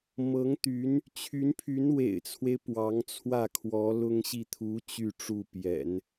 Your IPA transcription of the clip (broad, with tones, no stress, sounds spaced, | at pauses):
m ɤ˧˥ ŋ t̪ y˧˥ n | t͡ɕʰ y˧˥ n pʰ y˧˥ n w ḛ˨˩ ɪ̯ t͡sʰ w e˦ ɪ̯ p w ɑ˧˥ ŋ t͡sʰ w ä˥˩ kʰ w ɔ˧˥ l ʊ˥ ŋ ɕ i˥˩ t̪ʰ u˧˥ t͡ɕ y˥˧ ʈ͡ʂ u˥˩ p j ɛ̰˨˩˦ n